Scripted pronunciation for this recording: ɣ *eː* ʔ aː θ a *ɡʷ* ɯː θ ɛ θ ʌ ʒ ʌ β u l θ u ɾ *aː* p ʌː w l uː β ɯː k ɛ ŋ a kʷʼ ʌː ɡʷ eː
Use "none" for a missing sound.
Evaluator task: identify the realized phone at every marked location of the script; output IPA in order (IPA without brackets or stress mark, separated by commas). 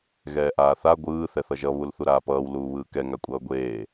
ɛː, ɡʷ, aː